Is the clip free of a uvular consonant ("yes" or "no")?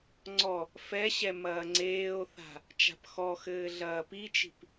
yes